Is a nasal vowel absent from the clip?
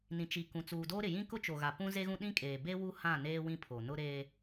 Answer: no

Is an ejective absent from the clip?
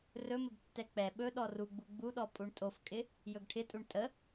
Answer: no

